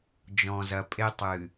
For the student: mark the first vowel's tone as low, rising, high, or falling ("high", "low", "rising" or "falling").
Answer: low